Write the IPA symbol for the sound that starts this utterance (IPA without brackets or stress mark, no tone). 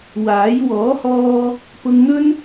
w